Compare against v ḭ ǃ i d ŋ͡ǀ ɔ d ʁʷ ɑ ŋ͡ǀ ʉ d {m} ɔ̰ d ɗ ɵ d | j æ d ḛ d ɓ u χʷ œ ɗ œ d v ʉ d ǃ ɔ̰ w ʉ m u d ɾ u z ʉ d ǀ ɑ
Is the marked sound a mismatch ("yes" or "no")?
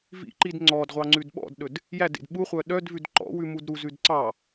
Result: yes